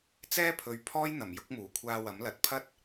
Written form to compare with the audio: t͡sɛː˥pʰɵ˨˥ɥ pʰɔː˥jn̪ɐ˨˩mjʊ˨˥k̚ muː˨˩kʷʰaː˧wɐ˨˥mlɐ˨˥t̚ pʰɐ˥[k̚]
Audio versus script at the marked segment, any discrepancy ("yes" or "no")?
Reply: yes